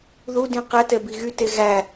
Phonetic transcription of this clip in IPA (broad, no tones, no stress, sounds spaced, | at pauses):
ð u d ĩ q ɛ t ɛ b i ɣ y t e ɣ æ